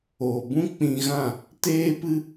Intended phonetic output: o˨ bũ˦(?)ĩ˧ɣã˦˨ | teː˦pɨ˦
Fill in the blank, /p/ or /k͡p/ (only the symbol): k͡p